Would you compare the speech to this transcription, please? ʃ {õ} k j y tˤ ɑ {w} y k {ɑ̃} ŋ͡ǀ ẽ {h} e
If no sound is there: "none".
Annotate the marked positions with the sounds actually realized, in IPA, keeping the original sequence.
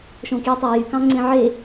õ, j, ɑ̃, ʕ

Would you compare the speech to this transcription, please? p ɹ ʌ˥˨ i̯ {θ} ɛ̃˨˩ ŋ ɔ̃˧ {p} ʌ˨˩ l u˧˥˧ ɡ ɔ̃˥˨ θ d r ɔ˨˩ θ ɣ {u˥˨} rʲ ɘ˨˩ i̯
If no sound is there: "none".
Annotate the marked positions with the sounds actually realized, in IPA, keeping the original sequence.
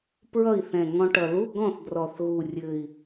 θ, ʈ, u˨˩

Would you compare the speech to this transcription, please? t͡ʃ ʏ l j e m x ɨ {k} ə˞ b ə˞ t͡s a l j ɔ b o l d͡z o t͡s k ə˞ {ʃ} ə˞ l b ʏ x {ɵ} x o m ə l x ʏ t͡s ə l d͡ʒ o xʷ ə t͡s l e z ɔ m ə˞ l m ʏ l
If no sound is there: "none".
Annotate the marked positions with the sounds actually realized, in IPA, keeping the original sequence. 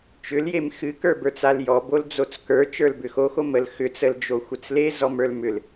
k, t͡ʃ, o

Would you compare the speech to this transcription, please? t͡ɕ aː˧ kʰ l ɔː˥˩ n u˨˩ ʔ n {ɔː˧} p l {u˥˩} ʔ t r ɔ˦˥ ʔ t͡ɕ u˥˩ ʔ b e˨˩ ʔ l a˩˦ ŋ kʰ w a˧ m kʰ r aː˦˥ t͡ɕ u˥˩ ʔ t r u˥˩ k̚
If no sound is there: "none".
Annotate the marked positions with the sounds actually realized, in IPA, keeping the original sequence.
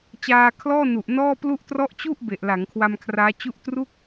ɔː˥˩, u˥˩

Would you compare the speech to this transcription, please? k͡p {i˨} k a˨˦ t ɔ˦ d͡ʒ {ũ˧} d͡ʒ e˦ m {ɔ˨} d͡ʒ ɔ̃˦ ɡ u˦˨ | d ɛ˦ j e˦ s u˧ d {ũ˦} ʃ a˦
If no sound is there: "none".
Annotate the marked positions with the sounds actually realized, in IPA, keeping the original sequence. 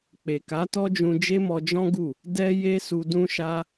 e˨, ũ˧, ɔ˧, ũ˦

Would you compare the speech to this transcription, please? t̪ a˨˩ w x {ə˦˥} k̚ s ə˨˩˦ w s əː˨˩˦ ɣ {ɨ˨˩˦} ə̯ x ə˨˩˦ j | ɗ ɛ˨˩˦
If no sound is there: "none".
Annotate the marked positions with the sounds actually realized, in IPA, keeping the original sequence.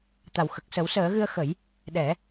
ə˨˩, ɨ˧

